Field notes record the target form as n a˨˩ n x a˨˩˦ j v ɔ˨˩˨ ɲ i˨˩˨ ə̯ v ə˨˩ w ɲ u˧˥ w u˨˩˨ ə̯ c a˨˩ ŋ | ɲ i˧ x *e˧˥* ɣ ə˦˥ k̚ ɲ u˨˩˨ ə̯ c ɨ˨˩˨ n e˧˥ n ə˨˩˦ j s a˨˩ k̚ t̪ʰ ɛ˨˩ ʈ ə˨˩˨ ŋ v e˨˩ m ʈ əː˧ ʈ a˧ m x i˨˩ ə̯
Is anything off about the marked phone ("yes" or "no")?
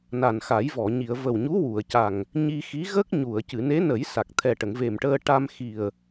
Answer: yes